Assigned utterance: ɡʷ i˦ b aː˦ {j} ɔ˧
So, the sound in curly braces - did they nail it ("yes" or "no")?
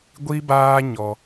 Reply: no